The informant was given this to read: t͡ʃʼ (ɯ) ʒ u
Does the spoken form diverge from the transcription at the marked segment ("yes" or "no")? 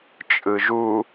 no